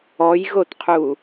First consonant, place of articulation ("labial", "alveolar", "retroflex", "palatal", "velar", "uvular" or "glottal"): palatal